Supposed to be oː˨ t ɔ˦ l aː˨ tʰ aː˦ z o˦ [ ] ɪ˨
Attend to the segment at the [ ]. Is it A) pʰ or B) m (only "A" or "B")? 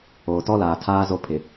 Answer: A